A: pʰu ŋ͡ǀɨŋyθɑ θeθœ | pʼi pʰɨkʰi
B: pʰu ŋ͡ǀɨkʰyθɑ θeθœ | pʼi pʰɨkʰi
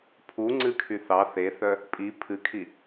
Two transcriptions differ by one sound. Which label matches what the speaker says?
B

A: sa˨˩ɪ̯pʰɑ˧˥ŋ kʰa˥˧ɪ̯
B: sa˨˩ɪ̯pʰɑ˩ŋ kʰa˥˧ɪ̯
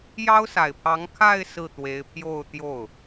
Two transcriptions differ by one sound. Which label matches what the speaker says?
A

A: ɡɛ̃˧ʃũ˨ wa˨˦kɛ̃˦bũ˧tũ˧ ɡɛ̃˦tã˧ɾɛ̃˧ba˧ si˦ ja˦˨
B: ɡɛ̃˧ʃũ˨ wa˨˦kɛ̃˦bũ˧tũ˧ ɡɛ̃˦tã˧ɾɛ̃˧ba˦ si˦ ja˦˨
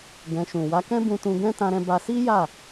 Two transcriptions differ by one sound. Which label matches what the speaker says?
A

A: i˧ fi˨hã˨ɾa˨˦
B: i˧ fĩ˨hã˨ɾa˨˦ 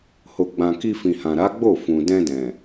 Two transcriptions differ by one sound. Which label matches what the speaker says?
B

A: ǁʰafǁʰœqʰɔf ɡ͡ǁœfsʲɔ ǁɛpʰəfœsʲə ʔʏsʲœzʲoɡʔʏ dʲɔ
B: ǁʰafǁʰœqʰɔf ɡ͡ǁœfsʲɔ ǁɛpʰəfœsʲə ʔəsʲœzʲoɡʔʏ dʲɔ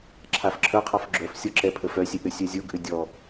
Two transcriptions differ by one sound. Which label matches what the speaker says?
A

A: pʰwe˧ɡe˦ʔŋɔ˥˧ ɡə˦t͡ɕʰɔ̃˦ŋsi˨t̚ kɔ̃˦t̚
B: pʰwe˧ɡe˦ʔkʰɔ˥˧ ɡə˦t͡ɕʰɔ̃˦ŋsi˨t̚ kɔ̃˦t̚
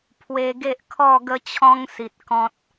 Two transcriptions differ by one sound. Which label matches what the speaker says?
B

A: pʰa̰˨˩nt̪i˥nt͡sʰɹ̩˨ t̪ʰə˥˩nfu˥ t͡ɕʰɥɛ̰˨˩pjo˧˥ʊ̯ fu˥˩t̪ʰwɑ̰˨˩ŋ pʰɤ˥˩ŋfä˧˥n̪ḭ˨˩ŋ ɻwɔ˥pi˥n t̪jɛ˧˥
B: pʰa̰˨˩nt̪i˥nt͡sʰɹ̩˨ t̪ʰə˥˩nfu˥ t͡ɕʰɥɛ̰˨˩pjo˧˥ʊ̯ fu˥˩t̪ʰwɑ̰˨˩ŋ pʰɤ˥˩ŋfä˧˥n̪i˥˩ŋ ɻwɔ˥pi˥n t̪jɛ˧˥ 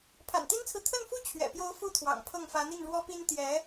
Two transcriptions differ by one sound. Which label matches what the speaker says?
B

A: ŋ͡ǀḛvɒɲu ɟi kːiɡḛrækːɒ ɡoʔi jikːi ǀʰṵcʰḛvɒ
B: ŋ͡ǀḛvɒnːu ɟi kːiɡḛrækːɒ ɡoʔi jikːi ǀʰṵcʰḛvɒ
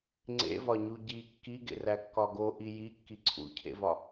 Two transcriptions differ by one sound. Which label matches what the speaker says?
A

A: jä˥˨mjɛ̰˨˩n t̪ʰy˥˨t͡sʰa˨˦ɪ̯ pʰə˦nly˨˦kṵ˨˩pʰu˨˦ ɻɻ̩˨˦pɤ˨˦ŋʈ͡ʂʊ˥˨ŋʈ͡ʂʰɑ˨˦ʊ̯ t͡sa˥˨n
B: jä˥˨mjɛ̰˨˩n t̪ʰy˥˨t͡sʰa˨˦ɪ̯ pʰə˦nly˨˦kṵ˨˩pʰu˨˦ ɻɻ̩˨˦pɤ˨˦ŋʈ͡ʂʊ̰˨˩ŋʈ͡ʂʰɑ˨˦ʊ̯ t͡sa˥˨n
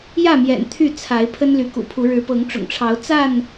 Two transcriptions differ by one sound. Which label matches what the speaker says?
B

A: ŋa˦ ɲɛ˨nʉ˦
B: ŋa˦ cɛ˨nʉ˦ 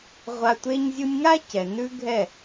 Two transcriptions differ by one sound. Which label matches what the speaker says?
B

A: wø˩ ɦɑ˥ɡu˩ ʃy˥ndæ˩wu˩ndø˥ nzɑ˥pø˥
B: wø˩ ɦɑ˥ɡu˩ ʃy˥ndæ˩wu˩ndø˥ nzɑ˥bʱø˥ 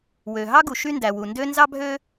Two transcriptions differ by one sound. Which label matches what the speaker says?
B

